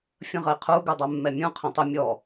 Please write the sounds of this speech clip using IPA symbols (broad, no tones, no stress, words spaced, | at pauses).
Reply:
fʲə̃ʁəi̯qʰu ɡʉdˤɛmːɛmʲũ qʰɛ̃tˤə mʲɔ